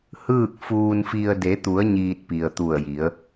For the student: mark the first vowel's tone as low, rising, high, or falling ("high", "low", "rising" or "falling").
falling